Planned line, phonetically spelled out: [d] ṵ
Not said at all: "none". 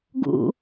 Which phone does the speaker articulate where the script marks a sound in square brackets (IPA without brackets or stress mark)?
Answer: ɡ